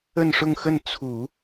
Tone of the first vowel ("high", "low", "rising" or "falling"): falling